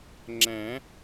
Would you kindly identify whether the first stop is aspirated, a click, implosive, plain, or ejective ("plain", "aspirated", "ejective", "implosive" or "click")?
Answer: click